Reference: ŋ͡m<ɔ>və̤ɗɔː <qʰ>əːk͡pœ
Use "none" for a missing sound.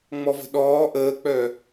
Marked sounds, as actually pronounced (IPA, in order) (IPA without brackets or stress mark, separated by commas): ɔ, ʔ